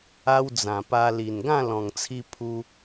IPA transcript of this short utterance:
a˦ w d͡z ã˨˩ p a˧ l i˨˩ n ɡ ã˥˧ l ɔ̃˨˩ ŋ t͡sʰ i˧ pʰ u˧

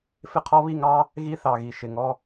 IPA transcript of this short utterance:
f ɪ˦ qʰ ɔ˦ β i˦˨ ŋ ɑ˦ | ɣ i˦ θ ɑ˨ ɣ i˨ ʃ ɪ˨ ŋ ɔ˦

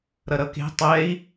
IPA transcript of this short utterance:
ɾ ʌ ɾ ʌ k e̤ tˤ ɛ i̯

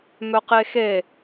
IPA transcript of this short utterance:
m œ q e x e

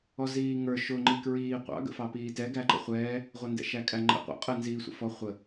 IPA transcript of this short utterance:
ɔ z iː ŋ ə˞ ʃ ʊ ŋ͡ǃ i k ɹ iː qʷ ɑ̰ ɡ ə̰ f ɑ p iː t ɛ ɡ æ ǃ ə̰ χʷ ɛː | ʁʷ ʌ n d ɛ̰ ʃ æ kʼ æ ŋ͡ǃ ɛ̰ qʷ ɛ̰ qʼ ə n z iː sʷ ə̰ f ɔ χʷ ə

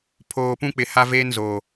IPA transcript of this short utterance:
pʰ oː˨ p ũ˦ k͡p ɪ˨ h a˦ v eː˦ n z oː˨

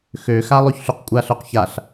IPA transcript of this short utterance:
x ø x a lˠ ø ç ɬ y q kʷʼ a ɬ œ q ç a ɬ

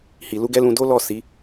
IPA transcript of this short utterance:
h i˨ l u˧ ɡ ɛ˦ l ũ˧ d o˦ l ɔ˦˨ s i˨˦

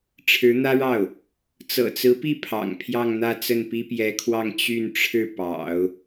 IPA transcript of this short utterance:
ʈ͡ʂʰ ɻ̩˧˥ n̪ ä˥ ɻ ɑ˥˩ ʊ̯ | t͡s ɤ̰˨˩ t͡s ɹ̩˧˥ p i˥˩ pʰ ɑ̰˨˩ ŋ pʰ j ɑ˥˧ ŋ n̪ ä˥˧ t͡s ə˥˩ n p i˥ p j ɛ˧˥ kʰ w ɑ˥˧ ŋ t͡ɕ y˥˧ n ʈ͡ʂʰ ɻ̩˥˩ p ɑ̰˨˩˦ ʊ̯

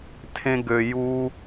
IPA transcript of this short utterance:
tʰ ẽ˧ ɡ ø˨ j u˧

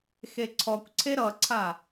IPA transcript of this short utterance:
x e ǀʰ ɔ kʷ ǀʰ e ɾ ʌ ǀʰ a

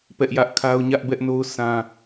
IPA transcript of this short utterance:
p ɛ˦ ʔ j ä˦ ʔ kʰ a˦ ʊ̯ ɲ ä˦ ʔ b ɛ˦ ʔ n o˦ ʊ̯ sʰ ã˦

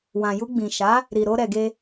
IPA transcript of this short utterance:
w ã˨ j u˧ ɡ͡b ĩ˨ ʃ a˨˦ | ɾ i˨ ɾ o˧ ɾ ɛ˨ ɡ e˧

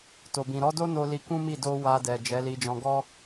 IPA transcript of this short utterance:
t o˨ b ĩ˨ ɾ ɔ˨˦ d o˦ n o˧ l i˧ k ũ˦ m i˦˨ d o˧ w a˧ d ɛ˨ d͡ʒ ɛ˨˦ l i˧ d͡ʒ ɔ̃˧ ɡ ɔ˦

